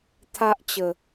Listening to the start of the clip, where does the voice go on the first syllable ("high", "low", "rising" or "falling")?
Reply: high